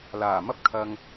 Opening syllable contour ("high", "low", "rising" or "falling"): low